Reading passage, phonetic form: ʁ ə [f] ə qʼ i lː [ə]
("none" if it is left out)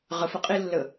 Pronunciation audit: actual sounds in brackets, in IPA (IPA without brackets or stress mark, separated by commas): f, ə